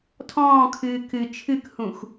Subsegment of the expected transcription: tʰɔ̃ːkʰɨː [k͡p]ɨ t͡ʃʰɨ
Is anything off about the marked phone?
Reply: yes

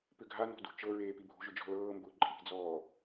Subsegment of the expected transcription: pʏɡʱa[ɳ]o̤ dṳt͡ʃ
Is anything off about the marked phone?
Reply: yes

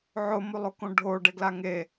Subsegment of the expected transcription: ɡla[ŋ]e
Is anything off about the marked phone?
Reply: no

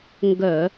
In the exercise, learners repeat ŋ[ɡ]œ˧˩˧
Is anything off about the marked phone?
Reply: no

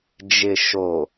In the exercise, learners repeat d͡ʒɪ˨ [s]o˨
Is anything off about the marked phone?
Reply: yes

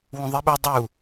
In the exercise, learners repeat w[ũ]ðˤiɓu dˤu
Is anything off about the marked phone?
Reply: no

